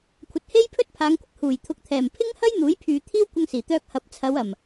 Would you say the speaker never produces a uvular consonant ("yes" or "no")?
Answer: yes